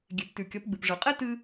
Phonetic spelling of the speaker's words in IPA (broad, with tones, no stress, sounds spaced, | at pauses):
ɡʲ e˩ p t ʉ˩ kʲ ɐ˩˧ p ɡ͡b ɨ˩ p ʐ ɨ˩ qʼ e˥ t ɨ˧